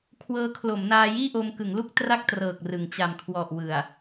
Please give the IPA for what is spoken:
kʰ w ɤː˦˥ kʰ l o˩˦ m n aː˧ j iː˥˩ ʔ o˧ m k ɯ˩˦ ŋ l u˥˩ k̚ t r a˥˩ k̚ t r ɤː˨˩ k̚ r ɯ˨˩ ŋ t͡ɕ a˨˩ m kʰ w ɔ˨˩ ʔ w ɯ˨˩ a̯

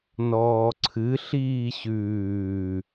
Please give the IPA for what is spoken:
n ɔː ǀʰ ɨ ɬ iː ɕ ʉː

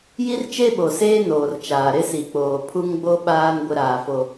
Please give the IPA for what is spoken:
j i˦ r t͡ʃ e˦ ɓ o˨ s eː˦ n oː˨ r t͡ʃ aː˨ ɾ ɪ˦ s i˨ k͡p oː˨ pʰ u˦ ŋ ɡ͡b o˦ ɓ aː˦ n ɡʷ ɪ˦ ɾ aː˨ f o˨

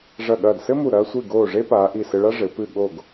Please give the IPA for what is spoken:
ʐ ɐ˧˩ ɠ ɐː˧˩ d s ɘ˥ m u˧˩ ɾ ɐː˧ sʷ i˧˩ ɡ oː˧˩ ʐ e˥ p aː˩˧ ʔ i˧˩ s ɘ˧ ɭ a˥ ʐ ɘ˩˧ p ɨ˧˩ ɠ o˧˩ ɡ

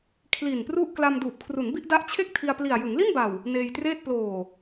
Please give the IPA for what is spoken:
kʰ l i˨˩ n p r u˥˩ ʔ k l a˧ m d uː˨˩ p̚ kʰ r u˩˦ n b i˥˩ ʔ d a˦˥ ʔ t͡ɕʰ e˥˩ k̚ tʰ i˧ a̯ p l i˨˩ a̯ j ɯ˩˦ ŋ l i˥˩ n b a˨˩ w | n eː˧ j t r eː˥˩ t̚ p l oː˨˩

